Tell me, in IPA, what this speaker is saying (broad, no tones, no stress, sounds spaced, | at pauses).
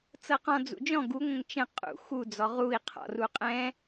t͡s ɤ q ɔ̃ d͡z ṵ d͡ʒ ɔ̃ ɡ u ŋʷ ə̃ ŋ t͡ʃ ə̃ qʼ ṵ x u d͡z ɔ ʁ u i̯ qʰ ɔ̰ r u qʼ ɛ̃